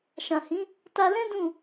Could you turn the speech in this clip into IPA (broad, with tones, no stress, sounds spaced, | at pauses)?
ʃ ã˨ h ĩ˨˦ | t a˧ l ɛ̃˦ d ũ˦˨